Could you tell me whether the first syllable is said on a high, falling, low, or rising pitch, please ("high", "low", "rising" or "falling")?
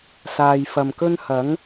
low